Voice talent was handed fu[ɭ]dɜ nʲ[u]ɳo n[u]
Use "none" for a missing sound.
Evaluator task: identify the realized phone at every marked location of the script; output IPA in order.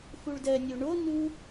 ɭ, o, u

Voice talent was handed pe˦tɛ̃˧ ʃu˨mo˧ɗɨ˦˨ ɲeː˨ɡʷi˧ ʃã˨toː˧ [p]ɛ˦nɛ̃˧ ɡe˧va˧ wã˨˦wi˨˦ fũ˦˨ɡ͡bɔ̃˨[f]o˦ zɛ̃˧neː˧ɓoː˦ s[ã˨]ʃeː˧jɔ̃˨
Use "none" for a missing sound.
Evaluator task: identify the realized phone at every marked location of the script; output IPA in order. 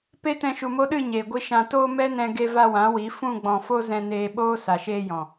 m, f, a˨

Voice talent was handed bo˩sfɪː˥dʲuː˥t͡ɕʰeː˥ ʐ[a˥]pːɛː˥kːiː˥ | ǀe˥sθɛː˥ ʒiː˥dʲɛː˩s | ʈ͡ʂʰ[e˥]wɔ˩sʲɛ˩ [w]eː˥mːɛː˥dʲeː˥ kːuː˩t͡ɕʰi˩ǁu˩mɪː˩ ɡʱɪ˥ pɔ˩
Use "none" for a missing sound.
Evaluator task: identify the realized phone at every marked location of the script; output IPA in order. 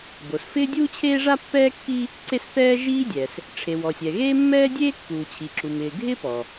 a˥, e˩, ɣ

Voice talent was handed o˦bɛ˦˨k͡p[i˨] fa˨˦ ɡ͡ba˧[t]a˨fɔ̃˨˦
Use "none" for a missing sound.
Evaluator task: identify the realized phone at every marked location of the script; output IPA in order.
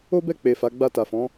e˨, t

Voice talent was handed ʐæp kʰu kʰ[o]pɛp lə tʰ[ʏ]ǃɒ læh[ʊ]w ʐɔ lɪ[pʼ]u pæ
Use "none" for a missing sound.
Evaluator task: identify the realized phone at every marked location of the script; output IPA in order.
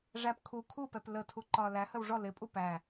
u, u, ə, pʼ

